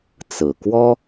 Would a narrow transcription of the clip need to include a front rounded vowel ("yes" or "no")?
no